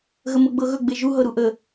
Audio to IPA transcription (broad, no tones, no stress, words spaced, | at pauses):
ɣəmɤɡ͡bɤɣɵ ɡ͡beʒu ɦɤɾuʔə